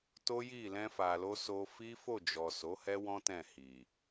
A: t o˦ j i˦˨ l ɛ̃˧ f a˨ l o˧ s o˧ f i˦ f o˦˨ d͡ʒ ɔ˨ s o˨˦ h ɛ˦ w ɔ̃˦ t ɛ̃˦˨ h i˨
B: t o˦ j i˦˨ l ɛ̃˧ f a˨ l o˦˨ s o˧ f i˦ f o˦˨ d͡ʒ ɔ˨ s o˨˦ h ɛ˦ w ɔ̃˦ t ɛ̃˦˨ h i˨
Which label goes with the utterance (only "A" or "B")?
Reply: A